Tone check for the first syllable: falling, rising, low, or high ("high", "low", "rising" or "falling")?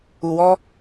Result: low